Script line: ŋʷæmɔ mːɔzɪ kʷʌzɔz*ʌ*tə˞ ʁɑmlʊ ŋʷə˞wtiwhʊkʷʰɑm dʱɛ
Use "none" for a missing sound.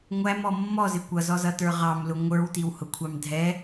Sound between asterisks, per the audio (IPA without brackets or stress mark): ʌ